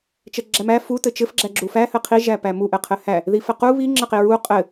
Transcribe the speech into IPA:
t͡ʃ ɛ ɡ͡ǁ æ m æ f u t ɘ t͡ʃ ɘ f ɡ͡ǁ æ ɡ͡ǁ u f æ h ɘ qʰ i ʒ æ p æ m u ʔ ɘ qʰ ɘ h æ | ð i f ɘ q u β i ŋ͡ǁ ɘ q i ɹ u qʼ ɘ

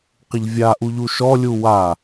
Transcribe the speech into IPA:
q ɪ ʎ vʲ a ʔ u ʎ u ʃ ɔ lʲ u w a

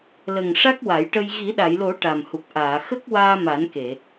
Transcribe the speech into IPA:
l ə˨˩ ŋ ʂ a˦˥ k̚ w a˨˩˦ j ʈ ə˧ j ɣ i˨˩˦ ɗ a˨˩˨ j l o˨˩˦ ʈ a˨˩ m h u˨˩ k̚ ʔ aː˨˩˨ x ə˦˥ k̚ w aː˧ m a˨˩˦ n k e˨˩˨

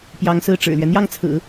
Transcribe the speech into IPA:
p j ɑ˧˥ ŋ s ɹ̩˥˩ ʈ͡ʂ ɻ̩˨˩ l ɥ ɛ˦ n̪ j ɑ˥˩ ŋ t͡sʰ ɹ̩˨˩˦

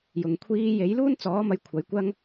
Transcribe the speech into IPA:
j ʊ˨ ŋ kʷʰ iː˧ j e˨˥ j l uː˥ n t͡s ɔː˨˥ m ɐ˧ j kʷʰ ɐ˨˥ j kʷ ɐ˥ ŋ

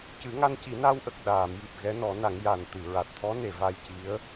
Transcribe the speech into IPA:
c ɨ˨˩˦ ŋ a˧ n c i˨˩˦ n a˧ w ʔ ə˨˩ k̚ ɗ aː˨˩˨ m j i˨˩ p̚ ɣ ɛ˧˥ n ɔ˨˩˦ n a˨˩˦ ŋ j a˨˩ n t̪ ɨ˨˩˨ ɹ a˨˩ t̚ t̪ʰ ɔ˧˥ n e˨˩˨ v a˧ j c i˧˥ ə̯

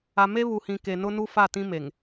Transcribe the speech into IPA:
a˨ m e˦ β u˨ h ĩ˨ k e˨ n ʊ˦ n u˦ f a˦˨ t ĩ˦ m e˨ ŋ

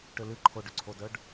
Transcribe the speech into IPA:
ʈ ʏ l ɨ ǃʰ o ɖ ʏ ǀʰ o d œ ɖ

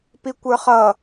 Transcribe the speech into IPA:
p i kʷ ə˞ χ ʌ

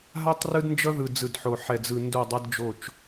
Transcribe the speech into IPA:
ɦ a˦ tˤ r ɯ˦ d n d͡ʒ ʌ˦ ð ɯ˨ d͡z ɯ˨ d ħ o˨ ħ ɛ˨ d͡z ɯ˨ n d o˦˨ dˤ ʌ˦ d d͡ʒ o˦˨ t͡ʃ

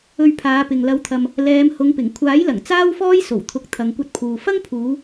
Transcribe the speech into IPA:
ɵ˧ ɥ pʰ aː˨˧ p ɪ˨ ŋ l ɐ˨˧ w t̪ʰ ɐ˨ m | l ɛː˨˧ m h ʊ˨˧ ŋ p ɪ˨˩ ŋ kʷʰ aː˨˥ j l ɐ˨˩ ŋ t͡s aː˥ w f ɔː˥ j s o˨˩ w t̪ʰ ʊ˨ k̚ t̪ʰ ɐ˨ ŋ kʷ ɐ˧ t̚ pʰ uː˨ f ɐ˥ ŋ pʰ uː˨˧

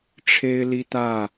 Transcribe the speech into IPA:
ʈ͡ʂʰ e˦ ɪ̯ l i˦ t̪ ä˥˨

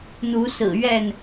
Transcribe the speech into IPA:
n̪ u˨˦ s ɹ̩˨˩ ɥ ɛ˥˨ n

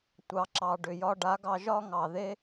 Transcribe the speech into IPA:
tʷ ɑ˨ ǁ ɑ˨ ɖ ʏ˨ j ɒ˧ ɖ a˨˦ ɡ ɑ˧ ʒ ɒ˦ ŋ ɑ˨ ð e˦

